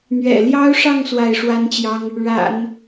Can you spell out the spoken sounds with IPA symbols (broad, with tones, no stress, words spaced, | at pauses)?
n̪ɥɛ̰˨˩ljɑ˥ʊ̯ʂɑ˥˧ŋ swa˥˩ɪ̯ʂwa˥nt͡ɕjɑ˥ŋ | ɻa̰˨˩˦n